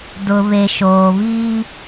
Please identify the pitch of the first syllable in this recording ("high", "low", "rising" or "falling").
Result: low